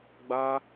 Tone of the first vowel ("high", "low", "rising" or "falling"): high